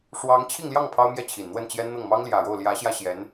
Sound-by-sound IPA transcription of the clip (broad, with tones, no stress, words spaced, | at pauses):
ʂwɑ˧˥ŋt͡ɕʰi˥˧ŋljɑ˥˩ŋ pʰɑ˥ʊ̯mjɛ˥˩ t͡ɕʰi˨˩nn̪wə˥˩nt͡ɕjɛ˥nn̪ɤ˥˩ŋ mɑ˥ŋljä˨˩ɻo˥˩ʊ̯ ljä˧˥ɕjä˥˩ɕjɛ˧˥n